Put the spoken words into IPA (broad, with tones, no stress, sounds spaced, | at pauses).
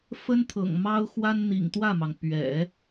f ə˥ n t̪ʰ ɤ̰˨˩ ŋ m ɑ˥ ʊ̯ x w a˥ n n̪ ḭ˨˩ ŋ t̪ w ä˥˩ m ɑ˩ ŋ p ɥ ɛ̰˨˩˦